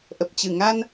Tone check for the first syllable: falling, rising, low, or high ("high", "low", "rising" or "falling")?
low